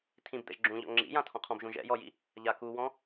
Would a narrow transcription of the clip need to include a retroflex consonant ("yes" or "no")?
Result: no